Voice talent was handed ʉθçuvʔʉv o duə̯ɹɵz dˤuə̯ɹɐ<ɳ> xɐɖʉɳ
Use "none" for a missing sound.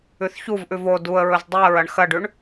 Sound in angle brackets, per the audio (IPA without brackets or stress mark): ɳ